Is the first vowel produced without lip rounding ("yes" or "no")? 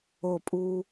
no